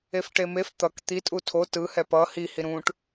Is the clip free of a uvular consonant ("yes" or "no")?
yes